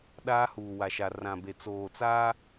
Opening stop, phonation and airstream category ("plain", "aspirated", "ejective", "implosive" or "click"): implosive